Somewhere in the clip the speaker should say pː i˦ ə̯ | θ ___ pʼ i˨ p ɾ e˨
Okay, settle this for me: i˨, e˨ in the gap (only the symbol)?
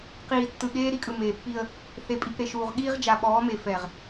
e˨